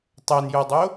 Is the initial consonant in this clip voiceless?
yes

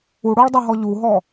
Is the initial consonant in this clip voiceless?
no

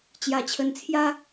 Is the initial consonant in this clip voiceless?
yes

